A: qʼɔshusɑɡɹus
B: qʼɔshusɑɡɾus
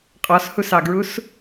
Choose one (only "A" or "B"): A